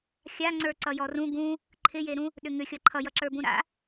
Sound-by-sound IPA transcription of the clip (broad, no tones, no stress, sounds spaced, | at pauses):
xʲ a ŋ͡ǀ ə˞ ǀ ʌ j ɔ r ũ ɡ ũ | ǃʰ ɪ j e ɾ ũ | ɗ ʏ ŋ ʏ xʲ ʌ ǃʰ ʌ j ʌ ǁ ə˞ b ũ ɾ a̰